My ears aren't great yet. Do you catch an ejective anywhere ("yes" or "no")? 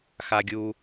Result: no